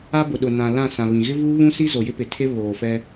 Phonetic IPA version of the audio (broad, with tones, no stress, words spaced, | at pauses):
a˦bʊ˨ɗʊ˨ nã˨ lã˦˨sã˨βĩ˨ ɣɪ˦vuː˦βũ˦si˦ zo˨jɪ˦pɪ˨tʰe˦ βoː˨fɛ˦